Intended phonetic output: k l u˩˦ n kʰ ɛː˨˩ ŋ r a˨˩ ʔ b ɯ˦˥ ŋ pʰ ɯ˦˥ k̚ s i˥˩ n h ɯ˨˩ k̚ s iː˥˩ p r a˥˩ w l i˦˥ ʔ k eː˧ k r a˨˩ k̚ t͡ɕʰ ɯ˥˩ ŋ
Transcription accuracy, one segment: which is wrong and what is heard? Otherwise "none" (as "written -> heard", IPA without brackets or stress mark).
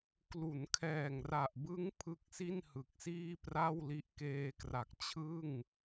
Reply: none